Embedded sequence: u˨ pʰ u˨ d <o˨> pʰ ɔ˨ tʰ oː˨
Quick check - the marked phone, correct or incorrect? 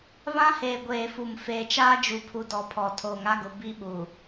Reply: incorrect